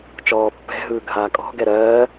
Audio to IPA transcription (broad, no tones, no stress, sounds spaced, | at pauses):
t͡ʃ ɔː pː ɛ̤ ɦ ɯː ɡʱ aː kʼ ɔ̤ ɡ ɛ ɾ ɜː